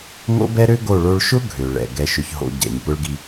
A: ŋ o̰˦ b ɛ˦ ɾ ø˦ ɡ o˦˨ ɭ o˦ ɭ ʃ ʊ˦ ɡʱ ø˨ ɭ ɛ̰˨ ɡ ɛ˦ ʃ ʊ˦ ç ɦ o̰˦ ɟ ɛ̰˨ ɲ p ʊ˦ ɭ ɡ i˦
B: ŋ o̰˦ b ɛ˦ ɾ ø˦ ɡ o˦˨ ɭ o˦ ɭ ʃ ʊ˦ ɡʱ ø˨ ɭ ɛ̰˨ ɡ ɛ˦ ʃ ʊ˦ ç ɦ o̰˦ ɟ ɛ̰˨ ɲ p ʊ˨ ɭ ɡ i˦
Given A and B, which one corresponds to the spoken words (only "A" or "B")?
A